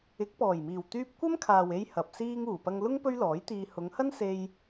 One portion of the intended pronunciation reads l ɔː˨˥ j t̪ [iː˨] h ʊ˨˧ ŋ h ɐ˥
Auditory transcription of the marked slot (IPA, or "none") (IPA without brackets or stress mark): iː˧